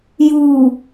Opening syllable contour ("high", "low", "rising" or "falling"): low